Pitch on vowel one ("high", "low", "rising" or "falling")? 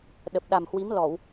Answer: low